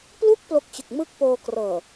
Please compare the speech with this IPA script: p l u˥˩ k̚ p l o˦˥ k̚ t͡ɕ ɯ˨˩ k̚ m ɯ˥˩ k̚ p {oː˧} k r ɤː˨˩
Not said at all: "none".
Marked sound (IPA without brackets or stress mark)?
oː˧